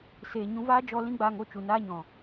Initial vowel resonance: oral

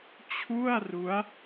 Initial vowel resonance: oral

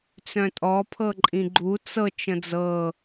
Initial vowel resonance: nasal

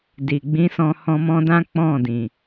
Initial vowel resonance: oral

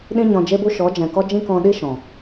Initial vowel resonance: nasal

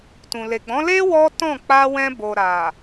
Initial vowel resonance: nasal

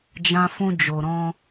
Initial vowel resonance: nasal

